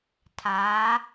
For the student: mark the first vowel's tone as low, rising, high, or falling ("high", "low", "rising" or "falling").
rising